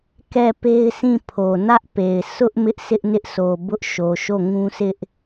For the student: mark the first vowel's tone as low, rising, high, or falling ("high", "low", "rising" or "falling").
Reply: falling